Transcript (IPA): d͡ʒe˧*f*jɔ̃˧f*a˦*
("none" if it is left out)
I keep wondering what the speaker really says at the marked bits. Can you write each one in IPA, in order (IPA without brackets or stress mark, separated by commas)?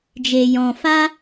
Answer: none, a˦